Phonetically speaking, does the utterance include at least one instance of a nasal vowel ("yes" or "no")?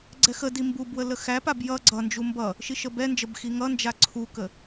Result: no